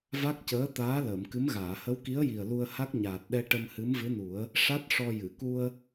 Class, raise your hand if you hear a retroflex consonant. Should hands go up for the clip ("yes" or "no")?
yes